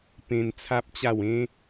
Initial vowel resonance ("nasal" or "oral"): nasal